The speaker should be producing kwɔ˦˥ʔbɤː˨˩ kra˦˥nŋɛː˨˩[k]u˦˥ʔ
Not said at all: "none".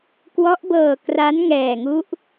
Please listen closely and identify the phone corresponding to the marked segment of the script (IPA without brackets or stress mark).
ŋ